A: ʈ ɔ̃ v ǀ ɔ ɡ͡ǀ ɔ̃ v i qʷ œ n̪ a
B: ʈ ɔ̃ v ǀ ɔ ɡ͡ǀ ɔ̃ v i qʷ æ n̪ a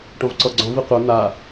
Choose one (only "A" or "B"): A